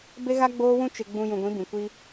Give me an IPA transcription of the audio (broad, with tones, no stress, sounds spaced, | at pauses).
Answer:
b e˦ ɣ a˦ ɡ͡b oː˦ w ũ˦ t͡ʃ ɪ˨ ɡ͡b ũ˨ j ũ˨ ɡʷ ĩ˨˦ b ĩ˨ kʷ i˦